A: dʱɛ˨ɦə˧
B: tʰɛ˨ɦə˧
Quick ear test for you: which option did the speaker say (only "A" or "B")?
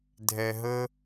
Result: A